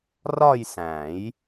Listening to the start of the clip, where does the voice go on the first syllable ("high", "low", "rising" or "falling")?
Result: falling